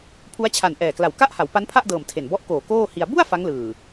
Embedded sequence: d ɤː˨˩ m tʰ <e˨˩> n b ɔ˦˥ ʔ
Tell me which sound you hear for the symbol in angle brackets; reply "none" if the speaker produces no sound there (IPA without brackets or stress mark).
e˨˩